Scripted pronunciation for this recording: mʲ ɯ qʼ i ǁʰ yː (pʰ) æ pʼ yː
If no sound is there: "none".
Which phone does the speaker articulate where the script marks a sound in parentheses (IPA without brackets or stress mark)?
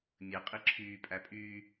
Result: pʼ